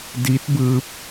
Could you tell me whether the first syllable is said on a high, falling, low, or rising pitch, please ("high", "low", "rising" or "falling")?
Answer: rising